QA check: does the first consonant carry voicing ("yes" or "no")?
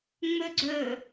yes